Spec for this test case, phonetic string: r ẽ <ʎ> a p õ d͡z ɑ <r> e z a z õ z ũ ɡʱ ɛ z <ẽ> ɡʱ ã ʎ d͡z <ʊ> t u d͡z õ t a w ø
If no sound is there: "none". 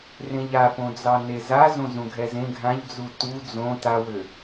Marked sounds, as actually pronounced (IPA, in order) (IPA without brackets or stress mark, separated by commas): ʎ, n, ẽ, u